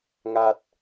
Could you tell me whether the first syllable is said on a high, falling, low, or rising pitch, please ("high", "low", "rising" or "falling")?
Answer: low